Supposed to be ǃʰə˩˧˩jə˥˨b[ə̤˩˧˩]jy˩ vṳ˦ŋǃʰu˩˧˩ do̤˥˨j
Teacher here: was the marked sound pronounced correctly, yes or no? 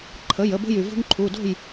no